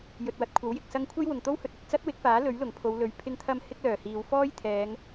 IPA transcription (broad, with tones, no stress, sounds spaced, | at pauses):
j ɵ˨ t̚ w ɐ˨ t̚ kʷʰ ɐ˨˥ w j ɪ˨ k̚ s ɐ˥ ŋ kʷʰ ɐ˥ j w ʊ˨˩ ŋ t̪ o˥ w h ɵ˨ t̚ ɵ˨ t̚ t͡s ɐ˥ t̚ w ɪ˨˥ k̚ f aː˨˥ l ɵ˨˥ ɥ l ʊ˨˩ ŋ pʰ o˨˧ w l ɵ˨ ɥ pʰ ɪ˧ ŋ t̪ʰ ɐ˧ m h ɪ˥ k̚ l œː˨˩ h iː˨˧ w f ɔː˥ j t̪ʰ ɛː˨˧ ŋ